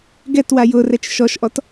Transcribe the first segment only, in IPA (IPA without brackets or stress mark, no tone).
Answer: ɡ